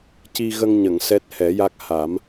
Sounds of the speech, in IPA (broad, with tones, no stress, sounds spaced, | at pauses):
c i˧ ɣ ə˧ ŋ ɲ ə˨˩˨ ŋ s ɛ˦˥ t̚ h ɛ˨˩˦ j a˦˥ k̚ h a˨˩˦ m